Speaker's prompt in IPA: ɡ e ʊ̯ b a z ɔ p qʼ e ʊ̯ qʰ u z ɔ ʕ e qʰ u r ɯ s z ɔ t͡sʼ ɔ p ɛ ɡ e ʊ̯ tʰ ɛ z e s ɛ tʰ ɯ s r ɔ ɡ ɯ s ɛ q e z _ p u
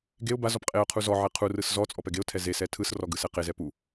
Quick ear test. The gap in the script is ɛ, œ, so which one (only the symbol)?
ɛ